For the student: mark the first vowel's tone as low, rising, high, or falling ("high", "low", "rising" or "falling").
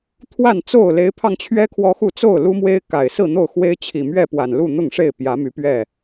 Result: falling